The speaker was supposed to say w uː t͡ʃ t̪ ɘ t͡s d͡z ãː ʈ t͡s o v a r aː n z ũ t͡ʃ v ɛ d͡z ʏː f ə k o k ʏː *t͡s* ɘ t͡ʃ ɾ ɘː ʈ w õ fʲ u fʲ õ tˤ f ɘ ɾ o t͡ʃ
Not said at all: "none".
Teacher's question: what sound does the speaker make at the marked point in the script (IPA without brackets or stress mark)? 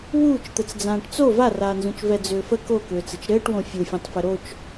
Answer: t͡s